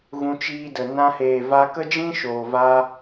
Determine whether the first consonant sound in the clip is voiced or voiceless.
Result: voiced